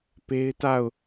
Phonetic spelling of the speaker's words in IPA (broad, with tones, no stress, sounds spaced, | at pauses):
p e˦ ɪ̯ t a˦˨ ʊ̯